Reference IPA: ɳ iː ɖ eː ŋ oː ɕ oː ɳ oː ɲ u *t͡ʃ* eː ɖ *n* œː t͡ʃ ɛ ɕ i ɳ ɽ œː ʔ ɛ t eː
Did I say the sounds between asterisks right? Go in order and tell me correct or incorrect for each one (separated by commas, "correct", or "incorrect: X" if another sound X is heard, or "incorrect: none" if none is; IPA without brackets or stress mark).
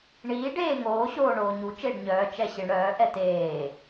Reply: correct, incorrect: ɲ